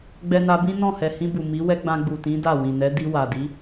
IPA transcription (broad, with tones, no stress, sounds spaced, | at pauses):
ɡ͡b ɛ˧ n a˧ b ĩ˦ n ɔ̃˦˨ h ɛ˨ h ĩ˧ b u˨ m i˨˦ w ɛ˦ ɡ͡b ã˧ ɡ͡b u˨ t ĩ˨˦ d a˦˨ w ĩ˨ n ɛ˨˦ d i˧ w a˨ d i˨˦